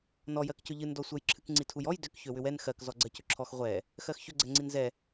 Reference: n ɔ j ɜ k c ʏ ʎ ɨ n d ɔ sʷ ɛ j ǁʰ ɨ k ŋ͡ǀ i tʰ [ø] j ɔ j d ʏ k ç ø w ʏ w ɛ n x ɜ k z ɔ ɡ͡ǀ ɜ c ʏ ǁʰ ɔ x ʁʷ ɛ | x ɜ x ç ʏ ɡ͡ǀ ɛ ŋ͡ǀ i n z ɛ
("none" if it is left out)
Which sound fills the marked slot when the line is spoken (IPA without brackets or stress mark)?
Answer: u